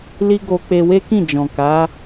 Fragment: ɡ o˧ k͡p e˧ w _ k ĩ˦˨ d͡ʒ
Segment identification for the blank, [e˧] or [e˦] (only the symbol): e˦